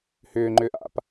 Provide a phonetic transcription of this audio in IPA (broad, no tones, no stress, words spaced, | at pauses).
hʏːŋ͡ǃʏːʔ a̰p